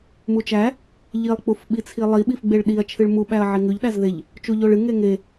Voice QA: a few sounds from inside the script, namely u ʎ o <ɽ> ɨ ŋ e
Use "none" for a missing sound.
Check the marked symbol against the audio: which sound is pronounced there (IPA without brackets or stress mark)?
ɭ